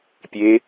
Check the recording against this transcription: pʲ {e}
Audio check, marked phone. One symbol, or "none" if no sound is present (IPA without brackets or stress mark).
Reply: e